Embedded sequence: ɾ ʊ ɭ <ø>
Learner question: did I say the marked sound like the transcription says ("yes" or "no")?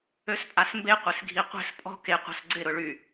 no